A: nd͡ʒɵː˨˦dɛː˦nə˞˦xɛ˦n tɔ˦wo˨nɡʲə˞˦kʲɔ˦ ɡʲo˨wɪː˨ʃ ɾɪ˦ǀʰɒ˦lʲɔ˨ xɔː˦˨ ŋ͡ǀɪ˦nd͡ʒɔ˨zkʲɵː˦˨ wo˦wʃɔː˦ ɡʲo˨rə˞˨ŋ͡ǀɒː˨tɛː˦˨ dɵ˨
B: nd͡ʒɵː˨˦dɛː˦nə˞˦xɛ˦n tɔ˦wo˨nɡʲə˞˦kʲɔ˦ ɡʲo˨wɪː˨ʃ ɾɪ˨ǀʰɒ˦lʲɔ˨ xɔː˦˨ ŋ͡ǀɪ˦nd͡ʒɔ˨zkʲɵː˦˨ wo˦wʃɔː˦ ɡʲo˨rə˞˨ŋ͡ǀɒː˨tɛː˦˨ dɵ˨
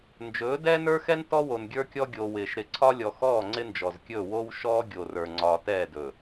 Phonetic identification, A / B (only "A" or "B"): B